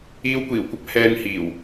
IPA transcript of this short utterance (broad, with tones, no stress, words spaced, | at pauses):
iː˧wkʷiː˨˩wkʷɐ˥p̚ hɛː˧nhiː˨˩w